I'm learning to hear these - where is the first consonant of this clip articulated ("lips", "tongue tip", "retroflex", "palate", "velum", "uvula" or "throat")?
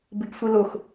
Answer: lips